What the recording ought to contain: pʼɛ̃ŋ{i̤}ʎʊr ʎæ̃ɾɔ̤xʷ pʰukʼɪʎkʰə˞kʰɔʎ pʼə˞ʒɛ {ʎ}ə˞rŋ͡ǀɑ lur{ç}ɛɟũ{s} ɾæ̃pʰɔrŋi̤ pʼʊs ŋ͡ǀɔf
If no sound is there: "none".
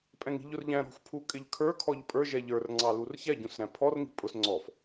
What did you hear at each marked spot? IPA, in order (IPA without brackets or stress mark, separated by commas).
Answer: i̤, ʎ, ç, s